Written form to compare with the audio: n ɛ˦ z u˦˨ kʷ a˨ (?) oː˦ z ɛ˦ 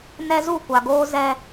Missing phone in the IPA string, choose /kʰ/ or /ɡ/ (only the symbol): ɡ